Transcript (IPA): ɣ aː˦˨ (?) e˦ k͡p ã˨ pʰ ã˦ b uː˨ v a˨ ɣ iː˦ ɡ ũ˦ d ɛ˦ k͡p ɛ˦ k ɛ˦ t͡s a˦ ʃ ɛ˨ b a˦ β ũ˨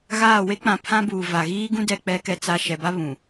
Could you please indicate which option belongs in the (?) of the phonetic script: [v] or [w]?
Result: w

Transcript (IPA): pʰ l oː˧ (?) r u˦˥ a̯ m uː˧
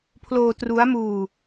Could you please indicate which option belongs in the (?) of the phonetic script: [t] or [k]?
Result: t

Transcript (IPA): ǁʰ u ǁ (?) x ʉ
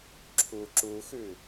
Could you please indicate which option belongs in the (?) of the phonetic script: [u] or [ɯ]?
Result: u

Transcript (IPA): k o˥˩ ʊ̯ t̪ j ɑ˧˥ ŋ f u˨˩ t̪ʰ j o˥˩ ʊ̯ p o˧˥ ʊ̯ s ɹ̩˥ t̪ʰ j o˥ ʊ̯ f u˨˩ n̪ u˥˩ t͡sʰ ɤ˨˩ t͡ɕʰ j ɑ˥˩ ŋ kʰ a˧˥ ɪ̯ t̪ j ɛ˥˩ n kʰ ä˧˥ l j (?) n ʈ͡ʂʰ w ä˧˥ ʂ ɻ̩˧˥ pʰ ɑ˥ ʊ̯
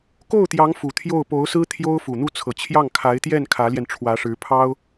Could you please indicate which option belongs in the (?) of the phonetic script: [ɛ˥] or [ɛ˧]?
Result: ɛ˧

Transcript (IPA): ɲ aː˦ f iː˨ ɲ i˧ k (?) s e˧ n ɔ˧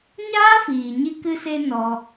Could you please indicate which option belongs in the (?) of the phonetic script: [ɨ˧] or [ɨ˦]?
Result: ɨ˧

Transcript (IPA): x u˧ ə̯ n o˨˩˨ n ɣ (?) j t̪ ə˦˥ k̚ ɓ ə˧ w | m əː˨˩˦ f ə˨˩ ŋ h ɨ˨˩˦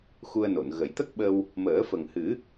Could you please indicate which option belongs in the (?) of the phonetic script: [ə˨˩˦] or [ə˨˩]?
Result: ə˨˩˦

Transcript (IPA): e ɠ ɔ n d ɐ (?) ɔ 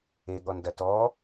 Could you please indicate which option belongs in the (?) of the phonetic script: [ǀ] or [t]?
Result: t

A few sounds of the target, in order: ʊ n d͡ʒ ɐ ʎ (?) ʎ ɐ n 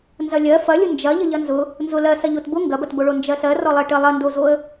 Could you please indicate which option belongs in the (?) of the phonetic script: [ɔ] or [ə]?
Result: ə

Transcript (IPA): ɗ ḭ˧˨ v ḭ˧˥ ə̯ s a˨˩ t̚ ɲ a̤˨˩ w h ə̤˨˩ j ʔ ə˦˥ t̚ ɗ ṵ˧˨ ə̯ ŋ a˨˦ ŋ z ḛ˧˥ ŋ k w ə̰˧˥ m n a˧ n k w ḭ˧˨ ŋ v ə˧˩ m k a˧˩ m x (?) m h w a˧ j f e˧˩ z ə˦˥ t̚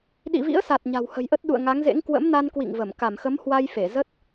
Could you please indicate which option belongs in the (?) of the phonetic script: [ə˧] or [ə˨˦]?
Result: ə˨˦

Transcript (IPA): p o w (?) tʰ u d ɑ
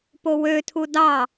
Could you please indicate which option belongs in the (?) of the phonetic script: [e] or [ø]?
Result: ø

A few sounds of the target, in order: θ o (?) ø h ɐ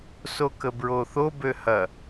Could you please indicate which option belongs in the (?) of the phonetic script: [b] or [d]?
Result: b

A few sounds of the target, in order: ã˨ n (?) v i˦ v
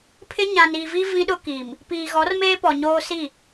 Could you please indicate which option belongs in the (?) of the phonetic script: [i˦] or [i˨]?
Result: i˨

